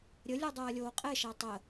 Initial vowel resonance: oral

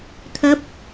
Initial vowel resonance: oral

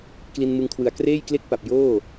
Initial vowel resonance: oral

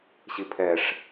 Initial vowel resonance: oral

